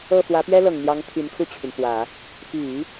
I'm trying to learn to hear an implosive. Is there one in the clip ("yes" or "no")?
no